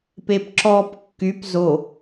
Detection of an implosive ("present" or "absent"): absent